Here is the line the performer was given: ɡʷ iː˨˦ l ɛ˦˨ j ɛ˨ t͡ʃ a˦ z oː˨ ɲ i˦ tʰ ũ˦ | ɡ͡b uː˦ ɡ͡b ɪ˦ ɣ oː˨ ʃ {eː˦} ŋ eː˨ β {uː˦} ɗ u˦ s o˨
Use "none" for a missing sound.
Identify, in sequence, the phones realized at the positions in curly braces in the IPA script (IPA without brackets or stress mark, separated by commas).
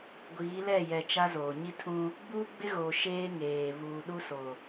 eː˦, uː˨